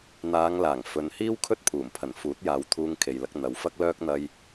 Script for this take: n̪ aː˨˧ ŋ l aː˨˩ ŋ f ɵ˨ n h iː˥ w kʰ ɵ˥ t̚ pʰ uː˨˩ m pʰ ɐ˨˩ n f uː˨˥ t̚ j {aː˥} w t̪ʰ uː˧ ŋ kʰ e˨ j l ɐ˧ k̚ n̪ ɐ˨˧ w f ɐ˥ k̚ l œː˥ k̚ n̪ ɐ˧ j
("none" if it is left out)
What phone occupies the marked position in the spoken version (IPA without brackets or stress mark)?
aː˨˧